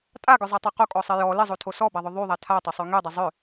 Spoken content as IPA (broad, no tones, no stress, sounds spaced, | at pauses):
tʼ a ɡ ʏ zˤ a tˤ y q o kʼ ɔ sˤ ɪ j ɔ l ɪ zˤ o tʰ o s ɔ b a ðˤ ʏ ðˤ y ðˤ a tʰ a tˤ ʏ sˤ y ŋ y dˤ ɪ zˤ ʏ